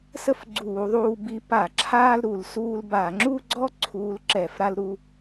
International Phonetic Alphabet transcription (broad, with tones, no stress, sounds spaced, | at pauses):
s ə˥˧ f ɡ͡ǀ uː˧˩˧ ðˤ uː˧ b i˧˥ p a˧˩˧ ǁʰ aː˥ l ɾ u˧˩˧ l s uː˧ l b a˧˩˧ ŋ͡ǁ u˥˧ ɡ͡ǀ ɔ˥ ǀʰ uː˧˥ l ǁ ɛː˧˩˧ f ɾ a˥ l ɾ u˥